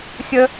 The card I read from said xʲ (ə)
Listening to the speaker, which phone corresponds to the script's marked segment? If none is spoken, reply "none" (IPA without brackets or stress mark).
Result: ə